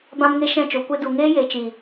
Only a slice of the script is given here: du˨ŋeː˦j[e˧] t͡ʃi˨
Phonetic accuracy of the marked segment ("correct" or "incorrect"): incorrect